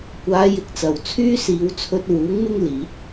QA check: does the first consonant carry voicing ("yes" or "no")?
no